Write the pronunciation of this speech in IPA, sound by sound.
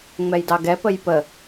ŋ͡m ɛ j d ɑ ɡ ɛ p ə j p ə

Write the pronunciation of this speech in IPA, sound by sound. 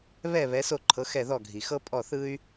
β ɛ˥˩ β ɛ˩˥ s o˥˩ ǃʰ ɤ˩˥ x ɛ˥˩ ð ɔ˥˩ ɡʱ i˩ x ɤ˥ pʼ ɔ˥˩ θ ɯ˥ y̯

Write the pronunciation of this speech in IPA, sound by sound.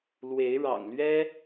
l w e˨˦ ɪ̯ ɻ ɑ̰˨˩ ŋ l ɥ ɛ˦

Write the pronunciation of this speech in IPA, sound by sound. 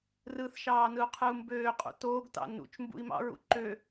r ɯ θ ʃ ɑː n ɯ u̯ qʰ ɯ u̯ m b øː qʼ ṵ t oː ɡ t ɑ̰ n ṵ t͡ʃ m b ṵ i̯ m ɑ̰ ɹ ṵ ǃ ø

